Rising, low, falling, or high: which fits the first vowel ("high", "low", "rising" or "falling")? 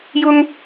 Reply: high